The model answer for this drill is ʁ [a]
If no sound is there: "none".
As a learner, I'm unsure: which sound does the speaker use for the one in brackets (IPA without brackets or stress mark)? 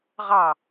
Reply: ɑ